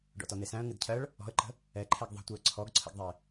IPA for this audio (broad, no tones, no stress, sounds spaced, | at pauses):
ɖ ɔ̰ t ɔ n e s æ̃ ə̯ ŋ ɨ d cʰ ɜ ɭ | ɔ̤ ə̯ ǃ ə̤ | ɛ ǃʰ ɛ ɡ ðˤ ə̤ tʷ ɨ ə̯ ǀʰ ɔ ɡ ǀʰ ə̰ ɡ ðˤ e